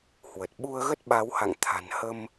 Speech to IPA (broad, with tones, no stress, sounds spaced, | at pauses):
h w ə˨˩ t̚ ɓ u˧ ə̯ ɣ ə˦˥ t̚ ɓ a˨˦ w h a̰˧˨ ŋ t̪ʰ a̤˨˩ n h ə˧ m